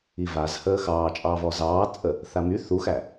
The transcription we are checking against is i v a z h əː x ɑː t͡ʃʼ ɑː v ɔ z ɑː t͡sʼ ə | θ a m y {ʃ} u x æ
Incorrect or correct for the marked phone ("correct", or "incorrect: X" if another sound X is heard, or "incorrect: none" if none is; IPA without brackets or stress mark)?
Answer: incorrect: θ